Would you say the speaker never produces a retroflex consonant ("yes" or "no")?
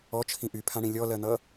no